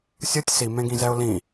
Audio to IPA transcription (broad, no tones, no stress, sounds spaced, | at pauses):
sʲ ɯ tʲ s i m ẽ ɡ ĩ z ɛ ʊ̯ l ĩ